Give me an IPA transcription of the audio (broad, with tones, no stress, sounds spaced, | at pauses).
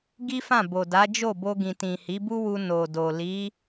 ɡ i˦ f ã˦˨ b o˨ d a˨˦ d͡ʒ o˦˨ b o˧ ɡ ĩ˨ t ĩ˨ h i˨˦ b u˦ w u˧ n o˨ d o˨ l i˨˦